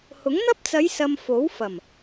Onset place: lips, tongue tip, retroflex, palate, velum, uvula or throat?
throat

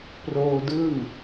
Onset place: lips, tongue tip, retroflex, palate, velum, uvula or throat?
lips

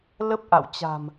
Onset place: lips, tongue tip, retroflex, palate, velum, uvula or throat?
tongue tip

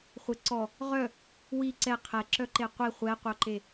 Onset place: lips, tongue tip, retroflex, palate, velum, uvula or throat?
uvula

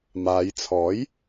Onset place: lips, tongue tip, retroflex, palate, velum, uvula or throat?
lips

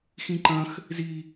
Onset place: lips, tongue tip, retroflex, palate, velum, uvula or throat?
velum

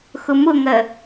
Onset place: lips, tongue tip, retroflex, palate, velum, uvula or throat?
velum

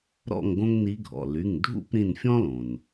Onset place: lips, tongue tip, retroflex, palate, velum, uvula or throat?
tongue tip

